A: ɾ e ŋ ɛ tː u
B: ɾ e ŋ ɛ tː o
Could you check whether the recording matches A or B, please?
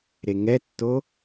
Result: B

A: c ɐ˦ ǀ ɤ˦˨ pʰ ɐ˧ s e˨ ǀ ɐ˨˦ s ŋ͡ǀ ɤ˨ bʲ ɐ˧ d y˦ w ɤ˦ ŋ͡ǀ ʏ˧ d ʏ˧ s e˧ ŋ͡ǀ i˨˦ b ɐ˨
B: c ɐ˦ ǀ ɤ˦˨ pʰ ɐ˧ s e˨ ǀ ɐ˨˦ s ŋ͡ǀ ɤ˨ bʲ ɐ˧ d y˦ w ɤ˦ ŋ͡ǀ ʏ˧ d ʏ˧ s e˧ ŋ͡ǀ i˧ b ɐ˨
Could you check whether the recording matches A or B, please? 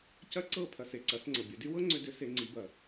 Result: A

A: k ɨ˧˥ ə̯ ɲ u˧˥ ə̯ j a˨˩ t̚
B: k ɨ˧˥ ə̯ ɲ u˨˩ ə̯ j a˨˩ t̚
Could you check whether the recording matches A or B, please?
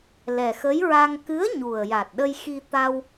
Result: B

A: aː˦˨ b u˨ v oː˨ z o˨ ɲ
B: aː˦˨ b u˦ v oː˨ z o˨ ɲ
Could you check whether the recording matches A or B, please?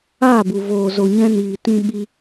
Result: A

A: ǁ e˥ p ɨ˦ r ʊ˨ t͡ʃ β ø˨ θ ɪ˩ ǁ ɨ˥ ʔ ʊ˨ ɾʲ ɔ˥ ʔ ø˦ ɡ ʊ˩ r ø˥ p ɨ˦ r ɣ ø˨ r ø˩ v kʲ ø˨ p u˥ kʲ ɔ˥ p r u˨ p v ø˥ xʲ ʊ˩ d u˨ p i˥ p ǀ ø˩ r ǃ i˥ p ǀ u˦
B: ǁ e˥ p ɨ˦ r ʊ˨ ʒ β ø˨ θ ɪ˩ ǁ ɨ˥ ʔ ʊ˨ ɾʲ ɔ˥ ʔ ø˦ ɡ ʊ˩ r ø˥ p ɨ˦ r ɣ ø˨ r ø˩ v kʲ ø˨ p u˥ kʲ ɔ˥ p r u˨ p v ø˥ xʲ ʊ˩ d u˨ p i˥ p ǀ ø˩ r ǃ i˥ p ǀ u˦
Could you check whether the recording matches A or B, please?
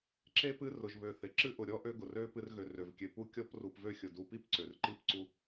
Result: B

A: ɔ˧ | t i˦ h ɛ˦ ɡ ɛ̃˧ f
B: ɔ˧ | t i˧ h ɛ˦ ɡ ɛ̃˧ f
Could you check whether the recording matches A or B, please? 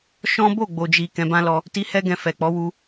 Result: A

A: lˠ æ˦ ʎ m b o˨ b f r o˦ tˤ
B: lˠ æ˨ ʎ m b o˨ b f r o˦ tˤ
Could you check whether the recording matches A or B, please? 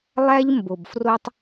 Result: A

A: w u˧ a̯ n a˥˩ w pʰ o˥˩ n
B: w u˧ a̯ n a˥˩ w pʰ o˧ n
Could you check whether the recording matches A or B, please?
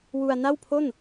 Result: A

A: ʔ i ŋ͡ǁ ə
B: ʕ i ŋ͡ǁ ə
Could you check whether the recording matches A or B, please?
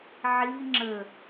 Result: B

